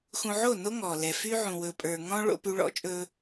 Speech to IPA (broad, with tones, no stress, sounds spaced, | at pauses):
x ũ˨ ʕ o˦˨ n o˦ ŋ ɔ˨ l ɛ˨ f y˦ ʕ ũ˨ w ɵ˨ pʼ ə˞˨ ŋ ɔ̃˦ ɭ o̰˦ p y˦ ɭ ɔ̰˦ t͡ʃʼ ɵ˦